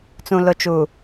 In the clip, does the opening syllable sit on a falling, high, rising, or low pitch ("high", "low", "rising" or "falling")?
low